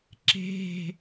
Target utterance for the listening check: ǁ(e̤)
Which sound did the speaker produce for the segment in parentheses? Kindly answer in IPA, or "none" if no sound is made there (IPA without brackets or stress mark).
e̤